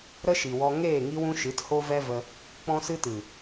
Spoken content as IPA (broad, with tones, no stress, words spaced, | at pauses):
ɾə˦ʃi˨wɔ˧ ŋeː˦˨ŋi˦wũ˦ʃɨ˨˦t ho˦vɛ˦və˧ | k͡pɔ̃˦sɨ˦tɨ˨